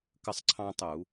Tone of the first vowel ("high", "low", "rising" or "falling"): falling